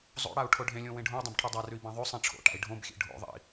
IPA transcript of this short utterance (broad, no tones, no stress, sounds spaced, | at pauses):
zˤ o̰ ɽ a u̯ ʈʰ o ɖʱ ẽ lʲ õ w ẽ ɖʱ õ u̯ dˤ ã b ʈʰ ʉ dˤ a r ʉ i̯ b ã ðˤ ʉ sˤ ĩ ʈ͡ʂʰ o̰ ʈ a̰ i̯ ɖʱ õ b xʲ ḛ ɖʱ o̰ ðˤ ḭ